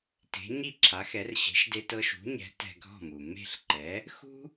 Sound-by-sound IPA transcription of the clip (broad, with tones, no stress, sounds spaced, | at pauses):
t e̤˩˥ ɲ i˥˩ ǁʰ a˩˥ x ɛ˩˥ r ɕ e̤˩˥ ʃ d e˧ t ɤ˧ ʃ ṳ˩˥ ɲ ɛ̤˩˥ t ɛ̤˧ ɡʱ ɔ̤˥˩ m u˩ m e̤˥˩ ɬ ǃ ɛ˩˥ | x ṳ˥